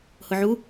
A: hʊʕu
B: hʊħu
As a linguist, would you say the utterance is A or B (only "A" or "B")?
A